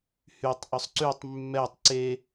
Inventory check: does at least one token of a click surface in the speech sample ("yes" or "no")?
yes